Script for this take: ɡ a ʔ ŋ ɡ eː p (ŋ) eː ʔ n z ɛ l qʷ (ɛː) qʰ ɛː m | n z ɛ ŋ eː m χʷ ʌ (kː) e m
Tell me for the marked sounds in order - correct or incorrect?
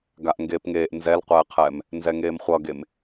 correct, correct, incorrect

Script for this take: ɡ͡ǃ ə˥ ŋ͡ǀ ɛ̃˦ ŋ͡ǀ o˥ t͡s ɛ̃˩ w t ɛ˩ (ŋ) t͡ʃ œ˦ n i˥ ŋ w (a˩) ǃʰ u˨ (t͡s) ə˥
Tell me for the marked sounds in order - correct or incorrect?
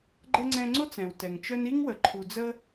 correct, incorrect, incorrect

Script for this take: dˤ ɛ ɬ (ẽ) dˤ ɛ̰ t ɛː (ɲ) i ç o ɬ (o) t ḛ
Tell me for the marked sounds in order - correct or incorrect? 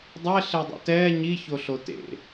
incorrect, correct, correct

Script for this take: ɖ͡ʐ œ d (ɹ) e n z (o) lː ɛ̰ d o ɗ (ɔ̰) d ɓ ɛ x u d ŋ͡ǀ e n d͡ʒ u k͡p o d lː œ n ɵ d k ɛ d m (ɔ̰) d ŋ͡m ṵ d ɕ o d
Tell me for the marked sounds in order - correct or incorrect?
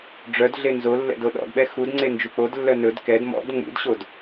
incorrect, correct, correct, correct

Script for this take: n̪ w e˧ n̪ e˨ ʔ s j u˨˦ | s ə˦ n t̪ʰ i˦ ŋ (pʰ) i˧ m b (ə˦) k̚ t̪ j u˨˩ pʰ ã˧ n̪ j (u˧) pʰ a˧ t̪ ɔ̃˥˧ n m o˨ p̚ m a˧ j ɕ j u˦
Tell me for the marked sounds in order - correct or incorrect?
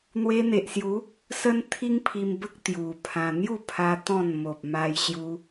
correct, correct, incorrect

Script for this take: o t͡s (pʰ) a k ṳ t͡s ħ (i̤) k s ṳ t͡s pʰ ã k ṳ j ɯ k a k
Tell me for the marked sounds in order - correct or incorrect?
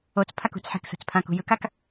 correct, incorrect

